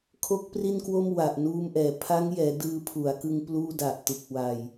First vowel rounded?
yes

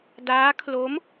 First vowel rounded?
no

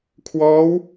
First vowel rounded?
yes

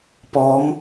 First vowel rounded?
yes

